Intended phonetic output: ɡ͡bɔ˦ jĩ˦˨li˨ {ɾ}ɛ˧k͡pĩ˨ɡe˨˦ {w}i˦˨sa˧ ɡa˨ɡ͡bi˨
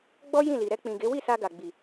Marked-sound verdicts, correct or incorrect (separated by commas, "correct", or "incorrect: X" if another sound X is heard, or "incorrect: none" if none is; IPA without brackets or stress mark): correct, correct